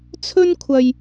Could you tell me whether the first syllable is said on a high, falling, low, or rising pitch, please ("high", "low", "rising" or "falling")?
high